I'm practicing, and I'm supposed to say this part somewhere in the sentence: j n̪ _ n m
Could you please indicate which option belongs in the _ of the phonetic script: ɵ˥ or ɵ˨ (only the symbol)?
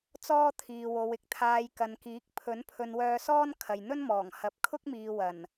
ɵ˥